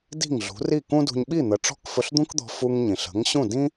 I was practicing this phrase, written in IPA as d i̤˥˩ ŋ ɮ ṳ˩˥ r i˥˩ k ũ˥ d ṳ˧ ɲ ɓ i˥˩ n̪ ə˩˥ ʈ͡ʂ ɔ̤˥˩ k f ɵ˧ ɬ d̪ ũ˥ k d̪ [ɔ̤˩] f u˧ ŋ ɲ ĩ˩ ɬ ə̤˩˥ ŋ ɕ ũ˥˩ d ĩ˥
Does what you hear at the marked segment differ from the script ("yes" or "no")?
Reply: yes